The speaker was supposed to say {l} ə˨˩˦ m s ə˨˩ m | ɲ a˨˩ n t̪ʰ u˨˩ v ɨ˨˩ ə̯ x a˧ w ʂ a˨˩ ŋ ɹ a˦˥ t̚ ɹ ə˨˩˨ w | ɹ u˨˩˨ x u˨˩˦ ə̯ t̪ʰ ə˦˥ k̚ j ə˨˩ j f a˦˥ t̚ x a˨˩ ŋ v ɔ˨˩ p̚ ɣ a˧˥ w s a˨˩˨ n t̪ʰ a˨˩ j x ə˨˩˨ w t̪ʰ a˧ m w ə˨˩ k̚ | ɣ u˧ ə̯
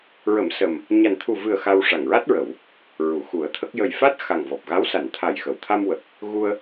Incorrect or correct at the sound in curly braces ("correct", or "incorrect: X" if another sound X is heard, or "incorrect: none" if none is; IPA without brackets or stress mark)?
incorrect: ɹ